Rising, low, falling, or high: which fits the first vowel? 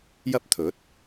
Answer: high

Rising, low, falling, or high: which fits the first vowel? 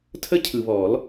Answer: high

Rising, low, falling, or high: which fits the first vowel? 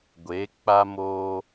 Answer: rising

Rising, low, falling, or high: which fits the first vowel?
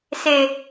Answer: low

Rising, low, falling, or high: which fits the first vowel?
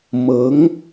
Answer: rising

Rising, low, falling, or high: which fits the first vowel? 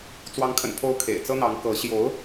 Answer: rising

